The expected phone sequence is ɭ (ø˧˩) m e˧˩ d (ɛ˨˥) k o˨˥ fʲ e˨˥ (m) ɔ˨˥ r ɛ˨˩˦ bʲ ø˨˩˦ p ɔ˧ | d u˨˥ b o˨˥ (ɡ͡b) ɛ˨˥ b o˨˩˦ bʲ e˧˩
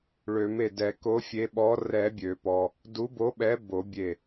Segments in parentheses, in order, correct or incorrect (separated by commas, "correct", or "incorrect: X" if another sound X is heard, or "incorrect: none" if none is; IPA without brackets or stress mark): incorrect: ø˨˩˦, incorrect: ɛ˨˩˦, incorrect: ɓ, incorrect: ɓ